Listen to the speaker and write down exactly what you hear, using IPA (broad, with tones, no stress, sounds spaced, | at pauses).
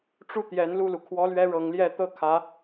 ʈ͡ʂ u˥˩ t̪ j ɛ˧˥ n l u˥˩ l u˩ kʰ w ɔ˥ l ɥ ɛ˥ ɻ ɤ˧˥ ŋ l j ɛ˥˧ t̪ ɤ˥˩ kʰ ä˧˥